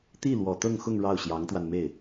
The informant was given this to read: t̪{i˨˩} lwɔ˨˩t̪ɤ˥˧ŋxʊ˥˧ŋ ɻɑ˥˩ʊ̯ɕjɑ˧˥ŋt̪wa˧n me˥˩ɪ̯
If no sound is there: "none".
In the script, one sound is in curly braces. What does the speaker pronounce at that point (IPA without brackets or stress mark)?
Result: i˥˩